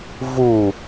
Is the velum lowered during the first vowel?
no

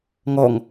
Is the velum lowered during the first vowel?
no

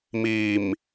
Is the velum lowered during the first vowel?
no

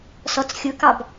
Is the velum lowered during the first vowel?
no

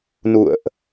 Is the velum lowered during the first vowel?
no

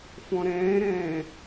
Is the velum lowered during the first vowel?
yes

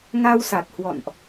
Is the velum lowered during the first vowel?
no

